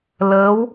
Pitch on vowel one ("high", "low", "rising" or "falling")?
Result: rising